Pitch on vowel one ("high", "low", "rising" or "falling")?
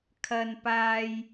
low